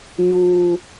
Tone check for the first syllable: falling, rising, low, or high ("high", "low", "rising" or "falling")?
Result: high